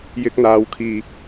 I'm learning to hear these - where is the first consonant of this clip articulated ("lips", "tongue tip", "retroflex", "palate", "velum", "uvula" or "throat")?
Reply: palate